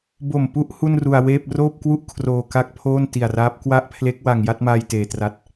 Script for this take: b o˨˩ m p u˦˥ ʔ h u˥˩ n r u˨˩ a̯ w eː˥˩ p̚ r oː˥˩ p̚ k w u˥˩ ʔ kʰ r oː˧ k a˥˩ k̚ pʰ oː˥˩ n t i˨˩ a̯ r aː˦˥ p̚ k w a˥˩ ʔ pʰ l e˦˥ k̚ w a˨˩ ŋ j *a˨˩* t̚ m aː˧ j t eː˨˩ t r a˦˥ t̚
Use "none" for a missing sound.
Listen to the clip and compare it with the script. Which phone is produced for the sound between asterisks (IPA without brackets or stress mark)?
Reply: a˥˩